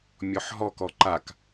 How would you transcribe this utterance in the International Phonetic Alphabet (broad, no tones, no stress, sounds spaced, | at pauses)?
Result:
mʲ ɔ ħ ɦ ɔ k ɔ ǃ a k